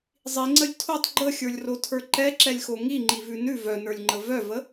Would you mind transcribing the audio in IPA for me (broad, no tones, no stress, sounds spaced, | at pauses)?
zˤ i ŋ͡ǀ ə lʲ tʰ o tˤ ɡ͡ǃ ə xʲ ə˞ lʲ r o tʰ ə˞ ǃ ɛ ǁ ɛ lʲ x o ŋ i ŋ͡ǃ i v ʉ n ʉ v œ n ə˞ lʲ ŋ͡ǃ ə v œ v ə